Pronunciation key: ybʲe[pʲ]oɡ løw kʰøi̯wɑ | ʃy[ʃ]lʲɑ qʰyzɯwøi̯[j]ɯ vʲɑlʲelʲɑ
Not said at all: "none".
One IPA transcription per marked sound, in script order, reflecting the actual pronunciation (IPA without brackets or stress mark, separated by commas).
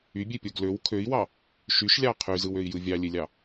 pʲ, ʃ, j